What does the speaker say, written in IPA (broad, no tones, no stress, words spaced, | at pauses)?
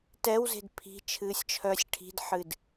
tɛwze̤d pʰi̤ t͡ʃʰɨːsʲt͡ʃʰœːsʲʈʰi̤dħɨd